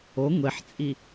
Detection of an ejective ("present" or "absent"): present